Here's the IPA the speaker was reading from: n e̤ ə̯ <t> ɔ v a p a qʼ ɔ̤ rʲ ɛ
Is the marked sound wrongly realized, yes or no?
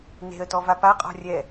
no